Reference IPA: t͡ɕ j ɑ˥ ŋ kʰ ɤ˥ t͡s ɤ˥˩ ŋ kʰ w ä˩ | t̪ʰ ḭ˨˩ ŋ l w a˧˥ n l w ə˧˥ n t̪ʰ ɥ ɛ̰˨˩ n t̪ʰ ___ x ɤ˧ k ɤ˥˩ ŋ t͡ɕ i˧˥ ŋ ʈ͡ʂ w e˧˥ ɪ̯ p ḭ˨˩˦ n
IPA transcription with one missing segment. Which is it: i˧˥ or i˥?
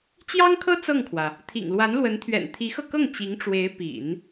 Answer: i˧˥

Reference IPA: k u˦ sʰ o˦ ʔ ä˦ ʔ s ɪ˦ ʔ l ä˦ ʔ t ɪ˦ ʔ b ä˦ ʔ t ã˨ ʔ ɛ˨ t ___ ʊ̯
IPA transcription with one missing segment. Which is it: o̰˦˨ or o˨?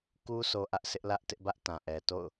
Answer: o̰˦˨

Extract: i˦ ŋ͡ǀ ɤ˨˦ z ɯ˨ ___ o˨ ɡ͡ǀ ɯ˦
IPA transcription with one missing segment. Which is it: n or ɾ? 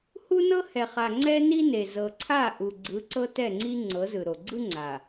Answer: ɾ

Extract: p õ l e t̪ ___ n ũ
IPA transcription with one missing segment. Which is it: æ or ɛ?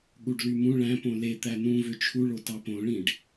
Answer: æ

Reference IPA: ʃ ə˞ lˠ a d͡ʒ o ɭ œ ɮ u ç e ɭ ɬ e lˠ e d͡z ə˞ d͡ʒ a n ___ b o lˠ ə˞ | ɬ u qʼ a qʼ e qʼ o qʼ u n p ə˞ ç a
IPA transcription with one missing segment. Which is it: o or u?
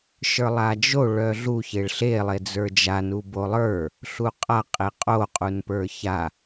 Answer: u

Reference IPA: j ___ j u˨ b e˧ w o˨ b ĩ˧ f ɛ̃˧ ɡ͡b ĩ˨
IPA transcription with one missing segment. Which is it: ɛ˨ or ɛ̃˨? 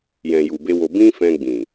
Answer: ɛ̃˨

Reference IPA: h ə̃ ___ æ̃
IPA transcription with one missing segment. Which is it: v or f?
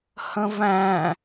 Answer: v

